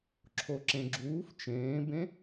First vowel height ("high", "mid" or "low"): mid